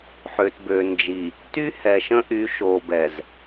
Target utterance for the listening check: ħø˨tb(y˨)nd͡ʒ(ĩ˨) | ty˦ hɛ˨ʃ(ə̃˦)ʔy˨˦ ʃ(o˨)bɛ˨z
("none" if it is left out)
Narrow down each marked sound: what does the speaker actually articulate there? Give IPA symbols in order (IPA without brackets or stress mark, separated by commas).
ø˨, i˨, ə̃˦, o˨